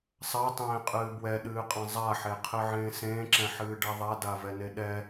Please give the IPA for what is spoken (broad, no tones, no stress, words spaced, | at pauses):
sˤatˤẽːqʼɨː bwɛɗɨːqʼã zˤaħeqʰɨʕẽː sẽːǁɛ̃ħɨːɖɛ ðˤadavɛne ɗɛ